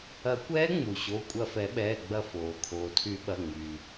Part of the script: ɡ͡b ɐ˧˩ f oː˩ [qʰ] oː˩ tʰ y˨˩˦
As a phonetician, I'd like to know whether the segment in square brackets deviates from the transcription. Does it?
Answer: yes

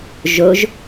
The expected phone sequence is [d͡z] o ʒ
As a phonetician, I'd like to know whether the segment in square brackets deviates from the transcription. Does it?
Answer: yes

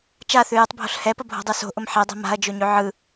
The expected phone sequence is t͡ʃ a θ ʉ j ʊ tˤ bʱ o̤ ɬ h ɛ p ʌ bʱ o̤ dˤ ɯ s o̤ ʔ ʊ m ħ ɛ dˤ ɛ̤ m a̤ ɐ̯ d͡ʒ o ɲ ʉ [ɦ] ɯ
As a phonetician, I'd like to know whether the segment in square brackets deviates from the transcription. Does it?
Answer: yes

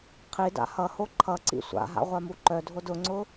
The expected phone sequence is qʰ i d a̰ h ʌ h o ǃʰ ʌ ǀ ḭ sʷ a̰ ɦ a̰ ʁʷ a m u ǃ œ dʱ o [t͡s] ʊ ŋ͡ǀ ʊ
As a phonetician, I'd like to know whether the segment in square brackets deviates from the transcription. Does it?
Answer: yes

